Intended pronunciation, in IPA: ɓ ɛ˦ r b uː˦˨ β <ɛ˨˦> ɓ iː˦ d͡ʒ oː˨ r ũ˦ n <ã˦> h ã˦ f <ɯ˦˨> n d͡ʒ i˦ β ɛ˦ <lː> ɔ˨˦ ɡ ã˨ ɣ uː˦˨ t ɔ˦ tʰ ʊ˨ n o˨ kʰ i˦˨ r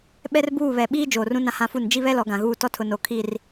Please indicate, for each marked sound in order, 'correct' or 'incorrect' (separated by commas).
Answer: incorrect, correct, incorrect, incorrect